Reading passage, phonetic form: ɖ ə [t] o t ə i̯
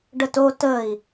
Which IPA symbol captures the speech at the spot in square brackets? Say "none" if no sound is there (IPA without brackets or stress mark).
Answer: t